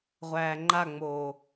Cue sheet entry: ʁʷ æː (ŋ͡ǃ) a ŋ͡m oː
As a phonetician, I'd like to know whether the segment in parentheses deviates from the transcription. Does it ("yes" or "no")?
no